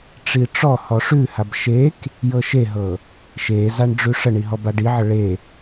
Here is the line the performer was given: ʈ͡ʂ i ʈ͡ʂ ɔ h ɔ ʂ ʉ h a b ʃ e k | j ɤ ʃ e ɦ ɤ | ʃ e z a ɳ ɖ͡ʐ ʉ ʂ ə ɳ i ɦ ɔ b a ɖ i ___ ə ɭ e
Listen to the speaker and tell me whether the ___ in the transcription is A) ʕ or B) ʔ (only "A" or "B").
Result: A